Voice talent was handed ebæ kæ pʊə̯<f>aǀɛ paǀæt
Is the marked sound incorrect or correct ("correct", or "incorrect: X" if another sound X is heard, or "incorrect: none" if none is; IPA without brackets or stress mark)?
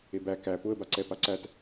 incorrect: b